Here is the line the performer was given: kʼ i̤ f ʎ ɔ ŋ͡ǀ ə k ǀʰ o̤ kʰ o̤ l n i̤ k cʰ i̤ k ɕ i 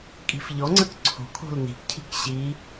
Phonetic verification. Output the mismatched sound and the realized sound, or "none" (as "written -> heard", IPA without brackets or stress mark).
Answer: none